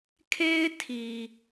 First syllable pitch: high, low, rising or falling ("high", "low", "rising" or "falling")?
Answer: high